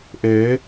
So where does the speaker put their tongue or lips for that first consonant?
throat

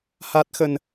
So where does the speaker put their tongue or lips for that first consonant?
throat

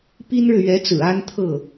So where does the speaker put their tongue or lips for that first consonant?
lips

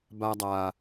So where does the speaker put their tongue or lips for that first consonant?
lips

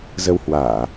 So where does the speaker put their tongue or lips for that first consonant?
tongue tip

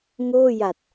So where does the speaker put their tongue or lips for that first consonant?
velum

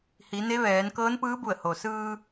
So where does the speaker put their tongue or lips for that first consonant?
throat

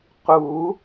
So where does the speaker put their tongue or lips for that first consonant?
uvula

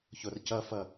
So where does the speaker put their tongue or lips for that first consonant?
palate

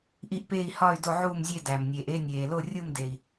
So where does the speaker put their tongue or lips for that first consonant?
throat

